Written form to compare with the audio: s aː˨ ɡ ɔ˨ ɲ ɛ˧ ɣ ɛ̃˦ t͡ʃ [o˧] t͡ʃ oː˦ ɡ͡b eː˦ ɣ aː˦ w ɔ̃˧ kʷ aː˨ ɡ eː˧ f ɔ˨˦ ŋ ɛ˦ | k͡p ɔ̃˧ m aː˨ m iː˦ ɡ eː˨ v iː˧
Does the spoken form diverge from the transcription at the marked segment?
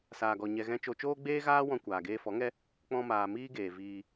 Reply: no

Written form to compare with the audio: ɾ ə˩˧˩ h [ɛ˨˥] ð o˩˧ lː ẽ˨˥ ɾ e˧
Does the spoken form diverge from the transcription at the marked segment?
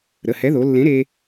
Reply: no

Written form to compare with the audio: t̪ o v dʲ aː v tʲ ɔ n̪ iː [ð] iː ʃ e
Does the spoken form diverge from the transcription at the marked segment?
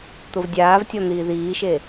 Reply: no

